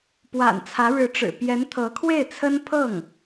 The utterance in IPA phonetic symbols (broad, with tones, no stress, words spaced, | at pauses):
pwa̰˨˩nt͡sʰä˧˥ɻɻ̩˧˥ʈ͡ʂɻ̩˨˩ pjɛ˧˥nt̪ʰɤ˧˥kʰwe˥˩ɪ̯t͡sʰə˥n pʰɤ˥˩ŋ